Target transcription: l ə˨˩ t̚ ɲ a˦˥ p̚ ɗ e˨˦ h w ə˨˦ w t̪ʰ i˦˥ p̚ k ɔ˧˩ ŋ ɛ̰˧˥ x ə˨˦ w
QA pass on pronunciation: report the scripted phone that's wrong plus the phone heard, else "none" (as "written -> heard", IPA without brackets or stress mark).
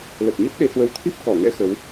a˦˥ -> ə˦˥